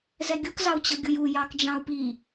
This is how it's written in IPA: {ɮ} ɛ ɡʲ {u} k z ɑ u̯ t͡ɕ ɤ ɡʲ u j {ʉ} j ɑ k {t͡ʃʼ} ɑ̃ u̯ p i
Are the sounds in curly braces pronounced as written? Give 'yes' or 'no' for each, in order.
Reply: no, yes, no, no

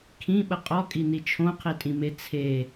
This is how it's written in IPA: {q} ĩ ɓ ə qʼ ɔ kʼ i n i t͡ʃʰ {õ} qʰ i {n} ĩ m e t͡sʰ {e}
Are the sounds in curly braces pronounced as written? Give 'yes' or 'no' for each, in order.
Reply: no, yes, no, yes

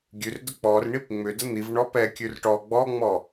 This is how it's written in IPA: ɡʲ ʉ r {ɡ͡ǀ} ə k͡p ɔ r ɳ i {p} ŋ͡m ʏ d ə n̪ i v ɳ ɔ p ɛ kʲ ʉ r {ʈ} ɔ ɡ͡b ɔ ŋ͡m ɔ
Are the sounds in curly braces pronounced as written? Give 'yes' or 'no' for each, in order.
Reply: no, yes, yes

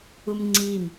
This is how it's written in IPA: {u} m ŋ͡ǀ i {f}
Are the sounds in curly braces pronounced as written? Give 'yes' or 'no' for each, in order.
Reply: yes, no

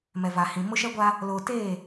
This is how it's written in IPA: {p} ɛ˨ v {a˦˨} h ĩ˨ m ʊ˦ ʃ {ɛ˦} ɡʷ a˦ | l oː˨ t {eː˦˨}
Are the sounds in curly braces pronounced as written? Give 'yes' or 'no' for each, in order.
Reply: no, no, yes, yes

